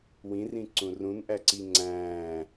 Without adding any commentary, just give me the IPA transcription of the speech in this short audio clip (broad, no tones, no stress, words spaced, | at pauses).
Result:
wĩrĩ ǀũrũnʔæǀi ŋ͡ǀæ̃ː